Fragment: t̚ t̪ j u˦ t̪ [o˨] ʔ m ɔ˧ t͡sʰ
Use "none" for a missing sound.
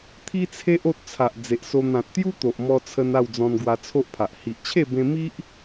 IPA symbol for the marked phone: o˨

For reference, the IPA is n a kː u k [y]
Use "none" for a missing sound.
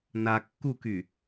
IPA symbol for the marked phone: y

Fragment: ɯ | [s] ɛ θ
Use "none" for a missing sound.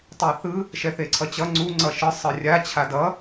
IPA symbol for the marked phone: ʃ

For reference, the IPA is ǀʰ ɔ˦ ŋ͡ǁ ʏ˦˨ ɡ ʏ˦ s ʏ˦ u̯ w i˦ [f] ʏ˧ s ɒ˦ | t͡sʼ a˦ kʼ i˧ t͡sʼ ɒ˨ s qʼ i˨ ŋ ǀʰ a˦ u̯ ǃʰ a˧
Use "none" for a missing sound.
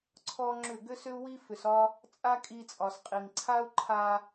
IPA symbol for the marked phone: f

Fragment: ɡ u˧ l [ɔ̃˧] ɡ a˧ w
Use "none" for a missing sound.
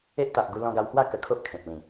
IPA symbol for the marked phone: ɔ̃˧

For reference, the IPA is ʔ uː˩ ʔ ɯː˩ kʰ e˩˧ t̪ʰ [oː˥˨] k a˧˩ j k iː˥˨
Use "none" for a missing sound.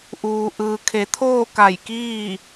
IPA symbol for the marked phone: oː˥˨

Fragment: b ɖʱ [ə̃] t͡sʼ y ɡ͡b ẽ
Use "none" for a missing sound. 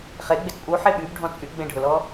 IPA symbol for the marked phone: ɔ̃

